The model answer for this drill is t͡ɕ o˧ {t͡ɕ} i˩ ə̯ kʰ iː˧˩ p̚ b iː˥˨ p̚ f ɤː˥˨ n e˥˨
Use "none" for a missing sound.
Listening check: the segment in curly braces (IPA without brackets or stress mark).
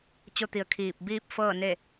t̪